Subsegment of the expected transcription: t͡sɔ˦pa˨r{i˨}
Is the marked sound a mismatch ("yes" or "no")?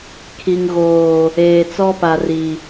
no